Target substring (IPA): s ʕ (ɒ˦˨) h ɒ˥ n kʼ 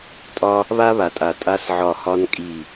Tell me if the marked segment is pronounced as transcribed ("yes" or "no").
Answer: yes